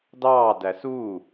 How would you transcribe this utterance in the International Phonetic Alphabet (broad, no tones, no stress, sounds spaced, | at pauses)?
d ɑː d æ s uː